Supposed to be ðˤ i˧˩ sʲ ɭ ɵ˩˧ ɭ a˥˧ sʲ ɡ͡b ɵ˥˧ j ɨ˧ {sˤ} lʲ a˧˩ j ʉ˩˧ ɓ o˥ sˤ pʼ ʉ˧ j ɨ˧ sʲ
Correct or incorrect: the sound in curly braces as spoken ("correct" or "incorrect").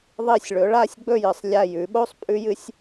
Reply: correct